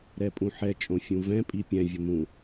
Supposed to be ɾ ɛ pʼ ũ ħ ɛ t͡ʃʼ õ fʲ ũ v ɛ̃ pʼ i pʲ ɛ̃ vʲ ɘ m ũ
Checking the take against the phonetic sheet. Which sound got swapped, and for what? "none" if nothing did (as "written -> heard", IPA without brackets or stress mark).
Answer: none